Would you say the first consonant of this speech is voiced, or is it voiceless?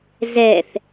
voiced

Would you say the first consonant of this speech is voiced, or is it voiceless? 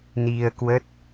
voiced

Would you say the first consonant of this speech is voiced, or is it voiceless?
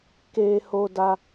voiceless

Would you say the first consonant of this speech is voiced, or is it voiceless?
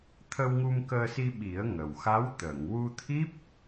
voiceless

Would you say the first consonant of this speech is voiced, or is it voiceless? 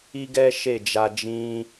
voiced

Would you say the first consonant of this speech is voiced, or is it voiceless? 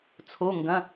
voiceless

